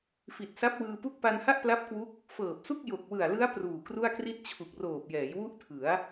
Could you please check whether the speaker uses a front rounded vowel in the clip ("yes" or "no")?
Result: no